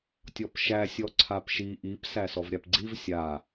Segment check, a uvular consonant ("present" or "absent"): absent